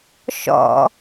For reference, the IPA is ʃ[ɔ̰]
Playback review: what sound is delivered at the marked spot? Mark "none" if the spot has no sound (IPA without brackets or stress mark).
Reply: ɔ̰